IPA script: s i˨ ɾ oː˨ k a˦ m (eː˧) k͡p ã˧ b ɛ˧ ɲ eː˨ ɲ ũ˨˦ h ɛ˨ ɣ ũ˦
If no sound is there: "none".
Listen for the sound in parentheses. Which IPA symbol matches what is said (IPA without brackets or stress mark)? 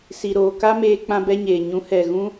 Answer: eː˧